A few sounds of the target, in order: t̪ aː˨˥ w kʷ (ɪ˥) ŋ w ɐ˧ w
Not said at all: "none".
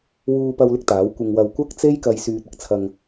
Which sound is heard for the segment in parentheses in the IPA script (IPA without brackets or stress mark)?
ɪ˧